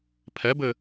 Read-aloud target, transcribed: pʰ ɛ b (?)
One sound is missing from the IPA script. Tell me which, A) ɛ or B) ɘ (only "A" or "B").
B